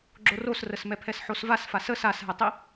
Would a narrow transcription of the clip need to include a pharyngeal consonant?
yes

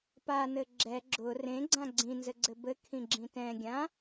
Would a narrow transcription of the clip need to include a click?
yes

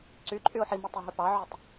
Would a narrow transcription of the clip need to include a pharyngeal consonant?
yes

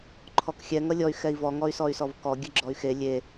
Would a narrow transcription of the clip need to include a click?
yes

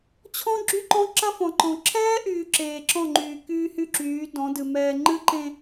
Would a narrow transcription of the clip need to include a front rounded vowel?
yes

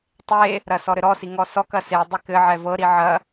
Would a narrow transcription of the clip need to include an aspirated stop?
no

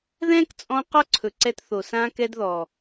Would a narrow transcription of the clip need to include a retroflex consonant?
no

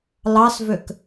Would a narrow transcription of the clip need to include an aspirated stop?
no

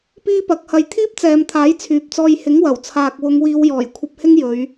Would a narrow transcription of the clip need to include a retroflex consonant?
no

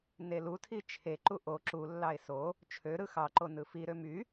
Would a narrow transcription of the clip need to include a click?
yes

